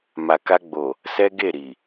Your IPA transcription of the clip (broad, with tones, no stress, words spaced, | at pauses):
ma˨ka˧ɡ͡bo˨ | sɛ˦ɡe˦˨ ɾi˨